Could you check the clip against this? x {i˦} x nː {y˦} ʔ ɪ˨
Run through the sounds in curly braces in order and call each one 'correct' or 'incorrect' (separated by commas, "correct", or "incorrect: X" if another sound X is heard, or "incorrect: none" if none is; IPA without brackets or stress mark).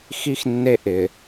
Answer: correct, incorrect: e˦